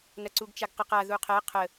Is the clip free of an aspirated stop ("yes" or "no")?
no